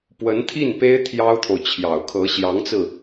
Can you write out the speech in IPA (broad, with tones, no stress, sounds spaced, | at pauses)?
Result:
p w ə˧˥ n t̪ʰ i˥˩ n p e˥ ɪ̯ t̪ʰ j ɑ˥ ʊ̯ t̪ʰ o˨ ʊ̯ t͡ɕʰ j ɑ˨˩ ʊ̯ kʰ ɤ˧˥ ɕ j ɑ˧˥ ŋ t͡s ɹ̩˧